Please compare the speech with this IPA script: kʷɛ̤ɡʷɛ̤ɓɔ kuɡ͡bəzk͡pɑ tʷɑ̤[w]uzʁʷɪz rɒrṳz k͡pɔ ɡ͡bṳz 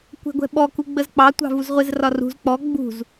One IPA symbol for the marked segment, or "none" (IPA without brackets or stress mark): v